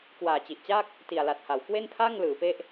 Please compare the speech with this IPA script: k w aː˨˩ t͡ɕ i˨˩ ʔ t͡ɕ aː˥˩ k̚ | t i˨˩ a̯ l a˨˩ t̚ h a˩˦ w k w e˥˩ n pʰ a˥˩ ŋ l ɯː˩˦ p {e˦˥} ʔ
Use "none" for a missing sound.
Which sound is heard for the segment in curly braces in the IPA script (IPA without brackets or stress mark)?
e˦˥